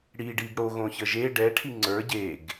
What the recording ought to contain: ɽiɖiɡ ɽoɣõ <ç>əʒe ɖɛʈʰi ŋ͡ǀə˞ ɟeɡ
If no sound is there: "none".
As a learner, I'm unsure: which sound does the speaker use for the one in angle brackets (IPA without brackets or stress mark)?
ç